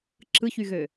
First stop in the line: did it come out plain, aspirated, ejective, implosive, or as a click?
click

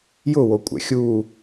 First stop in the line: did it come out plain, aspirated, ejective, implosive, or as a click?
ejective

